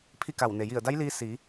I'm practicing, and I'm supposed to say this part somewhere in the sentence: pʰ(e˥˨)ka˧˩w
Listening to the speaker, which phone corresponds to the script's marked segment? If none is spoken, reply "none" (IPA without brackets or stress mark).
i˥˨